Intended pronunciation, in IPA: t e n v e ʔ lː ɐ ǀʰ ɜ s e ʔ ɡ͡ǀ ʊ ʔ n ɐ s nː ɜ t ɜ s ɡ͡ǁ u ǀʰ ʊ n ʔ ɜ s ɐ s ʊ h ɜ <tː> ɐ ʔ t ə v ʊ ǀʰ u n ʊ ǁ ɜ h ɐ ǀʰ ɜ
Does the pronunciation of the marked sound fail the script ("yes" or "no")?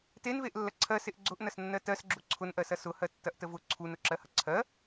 no